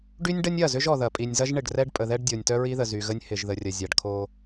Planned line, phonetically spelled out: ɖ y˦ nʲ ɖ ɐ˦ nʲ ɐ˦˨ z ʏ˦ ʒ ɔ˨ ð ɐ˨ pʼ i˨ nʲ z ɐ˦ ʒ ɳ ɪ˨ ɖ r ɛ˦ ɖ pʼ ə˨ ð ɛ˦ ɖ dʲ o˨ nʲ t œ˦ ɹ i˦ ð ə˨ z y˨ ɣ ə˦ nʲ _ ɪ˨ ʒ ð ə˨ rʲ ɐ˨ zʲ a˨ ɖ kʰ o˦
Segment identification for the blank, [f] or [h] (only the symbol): h